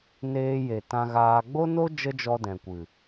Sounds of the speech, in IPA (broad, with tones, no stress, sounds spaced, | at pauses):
n eː˧ j e˨ t ã˧ ɣ aː˧ ɡ͡b o˦ n o˦ d͡ʒ ə˦ d͡ʒ ɔ˧ d ɛ̃˨ kʷ ɨ˨